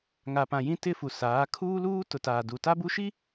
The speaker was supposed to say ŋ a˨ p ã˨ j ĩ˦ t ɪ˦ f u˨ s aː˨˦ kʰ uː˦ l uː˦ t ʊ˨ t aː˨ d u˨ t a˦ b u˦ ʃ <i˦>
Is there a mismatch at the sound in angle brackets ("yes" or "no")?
no